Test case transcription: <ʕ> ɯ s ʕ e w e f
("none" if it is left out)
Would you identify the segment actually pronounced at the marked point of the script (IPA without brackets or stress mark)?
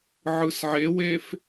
ʕ